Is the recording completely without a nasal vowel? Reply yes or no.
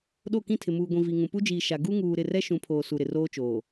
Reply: no